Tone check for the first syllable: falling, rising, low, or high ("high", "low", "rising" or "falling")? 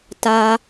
high